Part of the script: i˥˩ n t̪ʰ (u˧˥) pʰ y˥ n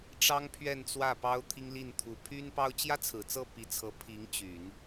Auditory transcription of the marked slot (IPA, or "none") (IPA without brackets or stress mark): u˧˥